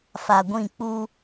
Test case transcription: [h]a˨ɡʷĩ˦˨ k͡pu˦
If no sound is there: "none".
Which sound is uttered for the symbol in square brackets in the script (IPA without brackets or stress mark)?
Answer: f